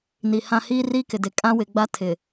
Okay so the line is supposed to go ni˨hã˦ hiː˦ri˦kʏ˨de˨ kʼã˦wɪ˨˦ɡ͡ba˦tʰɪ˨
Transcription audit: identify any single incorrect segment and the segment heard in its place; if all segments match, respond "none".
ʏ˨ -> ɪ˨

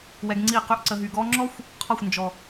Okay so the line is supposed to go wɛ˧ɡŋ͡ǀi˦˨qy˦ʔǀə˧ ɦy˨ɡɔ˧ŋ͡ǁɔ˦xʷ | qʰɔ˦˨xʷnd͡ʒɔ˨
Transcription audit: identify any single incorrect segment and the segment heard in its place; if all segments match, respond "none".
none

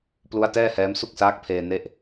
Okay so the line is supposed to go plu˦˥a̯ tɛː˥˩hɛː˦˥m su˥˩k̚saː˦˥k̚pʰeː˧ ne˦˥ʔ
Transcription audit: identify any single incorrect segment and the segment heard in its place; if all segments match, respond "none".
none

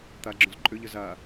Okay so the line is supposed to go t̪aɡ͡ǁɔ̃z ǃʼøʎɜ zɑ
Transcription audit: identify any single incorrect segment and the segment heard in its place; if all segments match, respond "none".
ɑ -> a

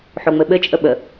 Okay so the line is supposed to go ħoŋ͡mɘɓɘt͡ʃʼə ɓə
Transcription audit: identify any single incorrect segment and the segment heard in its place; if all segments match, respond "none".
none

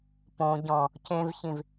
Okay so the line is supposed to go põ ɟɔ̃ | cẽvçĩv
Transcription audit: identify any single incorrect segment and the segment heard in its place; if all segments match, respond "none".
none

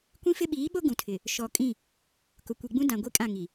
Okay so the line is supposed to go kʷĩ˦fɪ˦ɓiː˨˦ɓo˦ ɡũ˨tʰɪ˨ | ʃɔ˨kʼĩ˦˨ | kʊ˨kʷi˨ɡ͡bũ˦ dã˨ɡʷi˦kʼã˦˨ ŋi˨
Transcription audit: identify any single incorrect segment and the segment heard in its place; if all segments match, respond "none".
none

